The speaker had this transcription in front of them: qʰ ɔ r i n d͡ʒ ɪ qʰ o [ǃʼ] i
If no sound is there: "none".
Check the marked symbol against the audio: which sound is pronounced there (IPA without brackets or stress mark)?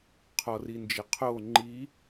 ŋ͡ǃ